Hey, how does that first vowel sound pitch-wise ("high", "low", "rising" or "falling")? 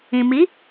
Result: low